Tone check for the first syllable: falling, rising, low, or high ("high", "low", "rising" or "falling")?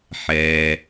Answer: low